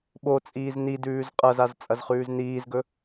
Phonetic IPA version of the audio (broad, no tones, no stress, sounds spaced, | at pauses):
ɓ o t͡sʼ iː z n i d ʉː z qʼ ɐ z a z t͡sʼ ɐ z χ ʉː z n iː z ɡ ɵ